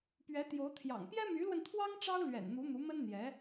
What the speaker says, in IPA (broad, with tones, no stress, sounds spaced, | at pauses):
p ɥ ɛ˧˥ t̪ j o˧˥ ʊ̯ t̪ʰ j ɑ̰˨˩ ŋ p j ɛ˥ m y˧˥ l w ə˧ n t̪ʰ w ɑ˥ ŋ ʈ͡ʂ ɑ˥ ʊ̯ l ɥ ɛ̰˨˩ n n̪ u˧˥ n̪ u˧˥ m ə˥ n n̪ j ɛ˧˥